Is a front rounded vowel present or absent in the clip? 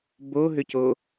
present